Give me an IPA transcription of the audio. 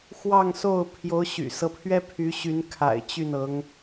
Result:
x w ɑ˥˧ ŋ s o˥˩ ʊ̯ pʰ j o˧˥ ʊ̯ ɕ y̰˨˩ s ɤ˦ pʰ ɥ ɛ˥ pʰ y˧˥ ɕ y˧˥ n kʰ a̰˨˩ ɪ̯ t͡ɕ y˥˩ n ɤ˧˥ ŋ

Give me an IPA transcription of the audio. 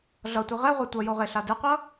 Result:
ɮ ʌ tʷ i ʁ ɛ ʁʷ e tʷ ʌ j o ʁ e ɬ a d e qʷ ʌ

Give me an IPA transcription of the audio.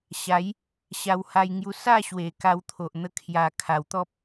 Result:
ɕ a˨˦ j | ɕ a˧ w h a˧ j ŋ j u˧ s a˥˧ ɕ w e˨˩ k a˧ w t̪ʰ o˨ ʔ n̪ ə˧ kʰ j a˨˩ kʰ a˨˩ w t̪ ɔ˦ p̚

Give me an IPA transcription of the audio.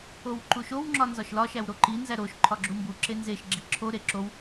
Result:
o w ǃ u ʃ o w ŋ͡ǁ ɒ n z ɒ ʃ l ɒ ʃ æ w ɾ o ǃ i n z æ ɾ o ʃ ǃʰ ɒ ɡ͡ǁ u m b u ǁ e n z e ʃ ɡ͡ǁ i ǁʰ o ɾ e ǁ o w

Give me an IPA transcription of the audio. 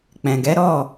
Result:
k͡p ɛ̃˨ ɡ ɛ˨˦ ɾ ɔ˦˨

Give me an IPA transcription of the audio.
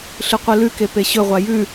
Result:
ɬ ɨ qʷ ɨ l ʉ k e p e ɕ ɵ ʁʷ a j ʉ

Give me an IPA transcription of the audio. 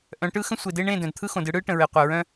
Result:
ʔ œ̃˨˦ ʈ ɯ˦ x ə̃˦ sʷ e˨ d e˦ ɳ ẽ˦˨ d œ̃˨ d t̪ʰ ɯ˦ x õ˨ d ɯ˦ ɽ ɯ˦ ʈ ə̃˨ ɹ e˨ qʷ œ˨ ɹ œ̃˦

